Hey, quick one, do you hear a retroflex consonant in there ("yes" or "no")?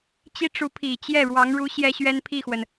yes